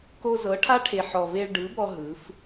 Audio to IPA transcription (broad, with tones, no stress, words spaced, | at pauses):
ko˧zɤ˨˦ʈʰa˦ʈʰe˨ ħɔ˨ve˧ɭ ɖɯ˨˦bɔ˧ ɦɯ˨˦f